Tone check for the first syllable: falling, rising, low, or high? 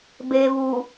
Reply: low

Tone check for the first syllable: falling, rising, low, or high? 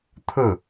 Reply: falling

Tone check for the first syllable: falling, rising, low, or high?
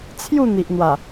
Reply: falling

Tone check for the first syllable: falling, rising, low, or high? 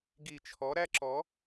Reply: low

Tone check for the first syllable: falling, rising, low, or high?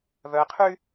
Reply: low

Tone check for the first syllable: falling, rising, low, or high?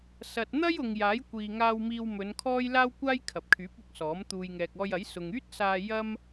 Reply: low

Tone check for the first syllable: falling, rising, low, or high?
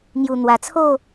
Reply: low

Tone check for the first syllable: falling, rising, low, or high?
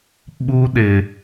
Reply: high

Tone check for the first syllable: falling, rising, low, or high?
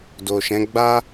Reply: low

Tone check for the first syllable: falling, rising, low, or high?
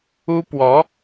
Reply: high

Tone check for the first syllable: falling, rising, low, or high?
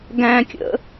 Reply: high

